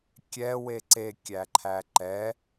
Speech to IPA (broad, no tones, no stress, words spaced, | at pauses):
kʲɛ weǀe kʲæǃʰæǃɛ